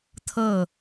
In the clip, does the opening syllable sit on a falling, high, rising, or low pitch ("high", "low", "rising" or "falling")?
falling